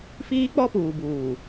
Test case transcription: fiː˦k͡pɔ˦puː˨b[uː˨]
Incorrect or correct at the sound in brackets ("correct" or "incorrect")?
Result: correct